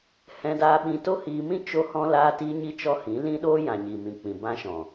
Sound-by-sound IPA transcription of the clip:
h ɛ̃˧ d aː˧ ɓ ĩ˧ t o˦ h iː˧ m ĩ˦ t͡ʃ o˧ h ɔ̃˧ l aː˧ t iː˧ ɲ i˧ t͡ʃ ɔ˧ h ĩ˨˦ l ĩ˦ ɗ oː˦ j ã˨ ɲ i˨ m ĩ˨ k͡p ĩ˨ b ã˧ ʃ ɔ̃˨

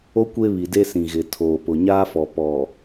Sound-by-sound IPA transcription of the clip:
o˦ kʷ e˦ β i˨ d e˦ s ĩ˨ ɣ ɪ˨ tʰ oː˨ p ʊ˨ ɲ aː˦ f ɔ˨ p ɔ˨

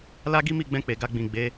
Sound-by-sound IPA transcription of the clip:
l a˦ ɡ i˦ m i˦˨ ɡ͡b ɛ̃˧ k͡p e˨ ɡ a˧ ɡ͡b ĩ˨ ɡ͡b e˨˦

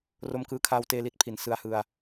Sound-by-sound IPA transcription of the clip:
r o˧ m k ɯː˧ kʰ aː˧ w t eː˧ l i˥˩ t̚ pʰ i˩˦ n s ɯ˧ a̯ h ɯ˧ a̯

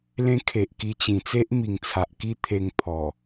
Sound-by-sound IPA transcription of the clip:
l ẽ˦ kʰ e˨ ʔ k i˧ t͡ɕ ĩ˨˩ t͡s e˦ ʔ m i˨˩ ŋ t͡sʰ a˨ ʔ k i˦ t̪ʰ e˧ ŋ pʰ ɔ˨˩

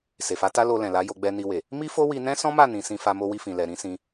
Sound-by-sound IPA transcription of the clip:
s e˨ f a˨˦ t a˦ l o˧ l ɛ̃˨ l a˨˦ j o˧ ɡ͡b ɛ˧ n i˧ w e˨ | m i˦ f o˦ w i˧ n ɛ̃˦ s ɔ̃˦ m a˦˨ n ĩ˨ s ĩ˧ f a˧ m o˧ w i˧ f ĩ˨ l ɛ˨ ɾ ĩ˨˦ s ĩ˧

